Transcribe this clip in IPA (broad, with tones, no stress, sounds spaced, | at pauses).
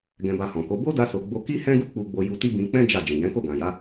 ɡ ɛ̃˧ b a˧ h ɔ̃˨ k o˨˦ b o˦ d a˧ s o˨ ɡ͡b o˧ k i˦ h ɛ̃˦ ɡ u˦ k͡p u˧ ɡ͡b o˧ j u˧ t i˦ b ĩ˧ k͡p ɛ̃˦ d͡ʒ a˦˨ d͡ʒ ĩ˨ j ɛ̃˨˦ k o˦˨ ɡ ã˨ j a˨˦